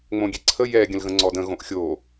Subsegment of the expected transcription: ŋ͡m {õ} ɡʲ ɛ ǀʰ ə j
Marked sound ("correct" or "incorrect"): correct